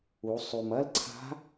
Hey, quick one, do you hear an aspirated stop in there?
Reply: yes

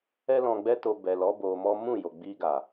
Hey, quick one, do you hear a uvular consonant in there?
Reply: no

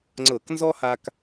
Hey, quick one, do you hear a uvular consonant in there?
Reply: no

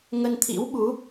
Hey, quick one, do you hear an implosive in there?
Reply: yes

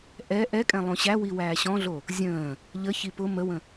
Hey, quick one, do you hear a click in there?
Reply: no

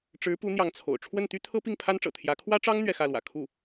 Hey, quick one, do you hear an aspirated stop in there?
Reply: yes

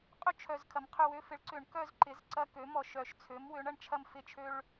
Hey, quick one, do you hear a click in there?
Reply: yes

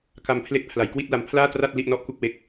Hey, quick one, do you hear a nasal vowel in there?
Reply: no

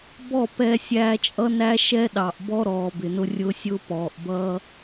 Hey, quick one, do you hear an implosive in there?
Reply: yes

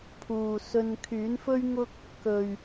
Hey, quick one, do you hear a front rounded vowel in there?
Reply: yes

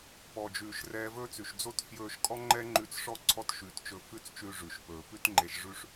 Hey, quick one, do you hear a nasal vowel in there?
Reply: no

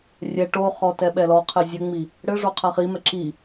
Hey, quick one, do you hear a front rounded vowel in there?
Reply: no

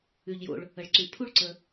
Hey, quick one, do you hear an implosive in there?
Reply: no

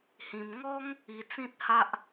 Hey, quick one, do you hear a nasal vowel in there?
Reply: yes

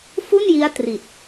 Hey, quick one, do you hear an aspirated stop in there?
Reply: no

